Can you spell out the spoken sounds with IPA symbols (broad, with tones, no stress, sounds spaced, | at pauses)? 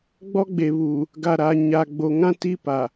ɡ͡b ɔ˦ ɡ͡b e˨ β u˨ | ɡ a˨ ɾ a˨ ɲ a˨ ɡ͡b o˨ ŋ ã˦ t i˦ p a˨